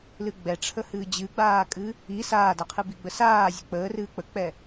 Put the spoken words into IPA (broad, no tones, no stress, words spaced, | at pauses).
lɨɡ͡bɛʈ͡ʂʰəhɨː d͡ʑɨɡ͡baːkʼɨ | i saːdaqʰɨ biɡ͡bəsaː zʲək͡pəːrɨː k͡pək͡pɛ